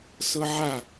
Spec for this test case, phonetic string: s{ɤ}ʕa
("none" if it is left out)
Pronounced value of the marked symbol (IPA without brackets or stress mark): ɤ